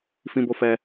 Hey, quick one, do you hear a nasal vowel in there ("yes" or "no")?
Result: yes